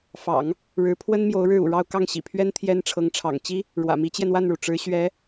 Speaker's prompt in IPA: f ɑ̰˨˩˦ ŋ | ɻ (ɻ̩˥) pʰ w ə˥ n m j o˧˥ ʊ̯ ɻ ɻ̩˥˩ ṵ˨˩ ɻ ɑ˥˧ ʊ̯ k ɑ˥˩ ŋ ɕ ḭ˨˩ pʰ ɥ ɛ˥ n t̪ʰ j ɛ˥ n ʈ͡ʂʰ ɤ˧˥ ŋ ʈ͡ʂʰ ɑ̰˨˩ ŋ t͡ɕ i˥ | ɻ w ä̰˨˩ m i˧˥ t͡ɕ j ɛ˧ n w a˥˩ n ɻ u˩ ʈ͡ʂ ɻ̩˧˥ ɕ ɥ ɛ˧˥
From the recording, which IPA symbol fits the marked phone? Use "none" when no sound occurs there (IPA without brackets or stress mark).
ɻ̩˧˥